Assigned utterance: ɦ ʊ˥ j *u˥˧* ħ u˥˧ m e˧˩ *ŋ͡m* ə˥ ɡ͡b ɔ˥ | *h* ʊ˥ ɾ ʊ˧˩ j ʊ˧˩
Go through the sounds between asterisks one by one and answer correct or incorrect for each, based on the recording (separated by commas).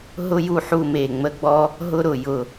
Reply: correct, correct, incorrect